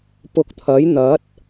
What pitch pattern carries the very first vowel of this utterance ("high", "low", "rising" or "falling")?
rising